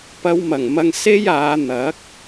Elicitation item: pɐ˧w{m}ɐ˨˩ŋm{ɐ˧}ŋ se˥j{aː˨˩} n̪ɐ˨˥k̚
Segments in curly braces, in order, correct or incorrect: correct, correct, incorrect

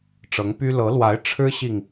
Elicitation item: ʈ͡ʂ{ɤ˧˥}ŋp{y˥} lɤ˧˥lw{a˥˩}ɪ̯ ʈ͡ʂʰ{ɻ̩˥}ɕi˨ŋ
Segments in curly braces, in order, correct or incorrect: correct, correct, incorrect, correct

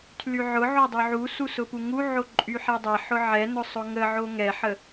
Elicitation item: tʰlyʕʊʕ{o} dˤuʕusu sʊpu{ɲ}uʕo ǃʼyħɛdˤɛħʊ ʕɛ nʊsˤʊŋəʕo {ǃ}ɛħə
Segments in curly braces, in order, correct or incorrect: correct, incorrect, incorrect

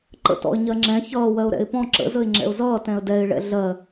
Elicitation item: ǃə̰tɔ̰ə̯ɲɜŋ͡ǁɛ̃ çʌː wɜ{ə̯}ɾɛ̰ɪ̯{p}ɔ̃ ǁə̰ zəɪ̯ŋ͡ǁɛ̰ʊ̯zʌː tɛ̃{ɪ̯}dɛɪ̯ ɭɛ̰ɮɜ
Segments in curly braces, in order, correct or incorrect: incorrect, correct, incorrect

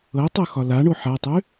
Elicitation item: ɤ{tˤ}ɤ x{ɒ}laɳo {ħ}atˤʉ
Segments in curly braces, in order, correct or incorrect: correct, correct, correct

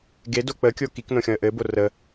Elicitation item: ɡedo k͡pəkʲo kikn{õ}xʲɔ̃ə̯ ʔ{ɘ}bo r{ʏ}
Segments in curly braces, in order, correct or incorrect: correct, correct, incorrect

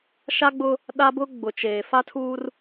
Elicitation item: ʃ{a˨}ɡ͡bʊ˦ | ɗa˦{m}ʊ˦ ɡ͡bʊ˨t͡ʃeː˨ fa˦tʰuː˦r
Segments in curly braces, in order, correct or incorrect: incorrect, incorrect

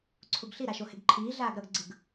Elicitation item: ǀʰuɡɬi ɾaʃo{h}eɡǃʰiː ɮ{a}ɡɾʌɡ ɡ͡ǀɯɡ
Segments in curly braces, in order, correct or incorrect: correct, incorrect

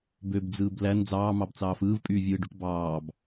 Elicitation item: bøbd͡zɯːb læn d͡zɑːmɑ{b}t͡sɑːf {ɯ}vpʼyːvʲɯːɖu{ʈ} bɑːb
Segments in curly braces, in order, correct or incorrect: correct, incorrect, correct

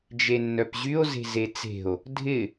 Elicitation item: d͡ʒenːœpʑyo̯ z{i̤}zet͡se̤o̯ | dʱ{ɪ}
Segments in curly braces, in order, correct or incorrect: incorrect, correct

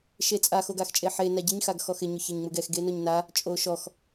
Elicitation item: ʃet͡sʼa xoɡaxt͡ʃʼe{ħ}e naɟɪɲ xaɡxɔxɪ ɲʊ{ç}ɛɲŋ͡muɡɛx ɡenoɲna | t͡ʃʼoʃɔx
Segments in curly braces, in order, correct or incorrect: correct, correct

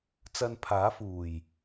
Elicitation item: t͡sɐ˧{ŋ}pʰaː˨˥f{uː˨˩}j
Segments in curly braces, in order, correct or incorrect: incorrect, correct

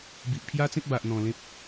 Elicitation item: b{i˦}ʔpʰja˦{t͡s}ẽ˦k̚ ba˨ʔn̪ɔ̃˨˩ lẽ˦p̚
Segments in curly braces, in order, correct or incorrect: incorrect, correct

